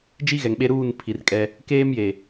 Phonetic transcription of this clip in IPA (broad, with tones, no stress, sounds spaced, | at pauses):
d͡ʒ i˦ ɣ ɛ˨ ŋ ɓ e˦ ɾ uː˦˨ n pʰ i˨ r kʼ ɛ˦ | k eː˦ m j e˨